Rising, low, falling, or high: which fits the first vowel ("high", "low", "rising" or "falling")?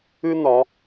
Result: high